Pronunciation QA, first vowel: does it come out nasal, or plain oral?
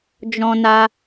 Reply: nasal